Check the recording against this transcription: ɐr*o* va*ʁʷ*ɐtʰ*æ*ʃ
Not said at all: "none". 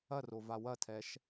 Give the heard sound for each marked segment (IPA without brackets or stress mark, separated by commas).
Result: o, w, ɛ